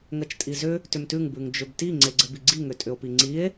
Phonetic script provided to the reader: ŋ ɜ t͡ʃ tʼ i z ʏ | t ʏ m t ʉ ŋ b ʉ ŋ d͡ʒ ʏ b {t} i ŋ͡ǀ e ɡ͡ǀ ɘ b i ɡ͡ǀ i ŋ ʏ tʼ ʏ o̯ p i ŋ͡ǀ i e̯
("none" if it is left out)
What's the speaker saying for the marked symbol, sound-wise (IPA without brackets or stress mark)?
t